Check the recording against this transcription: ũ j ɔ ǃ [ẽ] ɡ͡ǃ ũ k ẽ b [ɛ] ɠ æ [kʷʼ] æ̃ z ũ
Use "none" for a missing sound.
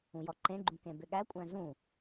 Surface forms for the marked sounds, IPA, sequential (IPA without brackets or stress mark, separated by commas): ẽ, ʏ, kʷʼ